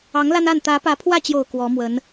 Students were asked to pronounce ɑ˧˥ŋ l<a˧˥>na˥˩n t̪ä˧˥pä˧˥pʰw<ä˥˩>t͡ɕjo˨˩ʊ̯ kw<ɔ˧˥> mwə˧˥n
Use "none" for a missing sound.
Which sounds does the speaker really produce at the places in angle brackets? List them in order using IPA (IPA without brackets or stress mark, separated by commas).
a˥, ä˥˩, ɔ˧˥